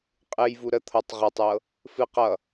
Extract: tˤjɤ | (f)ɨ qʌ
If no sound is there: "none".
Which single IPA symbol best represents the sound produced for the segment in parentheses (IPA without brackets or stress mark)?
f